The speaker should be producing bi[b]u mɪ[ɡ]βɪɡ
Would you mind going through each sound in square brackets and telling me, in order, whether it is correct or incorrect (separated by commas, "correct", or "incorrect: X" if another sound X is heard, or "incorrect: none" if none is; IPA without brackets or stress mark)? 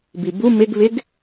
correct, correct